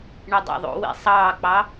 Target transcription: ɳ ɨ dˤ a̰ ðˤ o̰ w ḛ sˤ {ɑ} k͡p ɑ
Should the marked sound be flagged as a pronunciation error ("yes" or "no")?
yes